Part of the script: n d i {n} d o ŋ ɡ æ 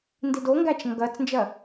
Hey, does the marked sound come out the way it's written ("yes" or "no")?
no